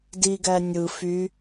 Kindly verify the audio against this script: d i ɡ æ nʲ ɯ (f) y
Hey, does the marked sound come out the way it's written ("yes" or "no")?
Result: yes